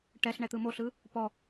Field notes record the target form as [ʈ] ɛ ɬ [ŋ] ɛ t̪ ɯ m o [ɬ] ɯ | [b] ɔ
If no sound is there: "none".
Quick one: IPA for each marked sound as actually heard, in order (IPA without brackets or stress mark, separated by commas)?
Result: ʈ, ɳ, ɬ, p